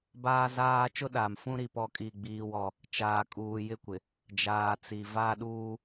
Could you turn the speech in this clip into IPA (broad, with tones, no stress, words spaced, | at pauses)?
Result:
baː˦zaː˦ t͡ʃʊ˦ɗaː˨m fũ˦ɾi˨ pɔ˦˨kʼi˦˨ɡ͡biː˦wɔ˦ | t͡ʃaː˨kʼuː˨jɪ˦kʷɪ˨ | d͡ʒaː˨t͡si˨ va˦˨ɗuː˦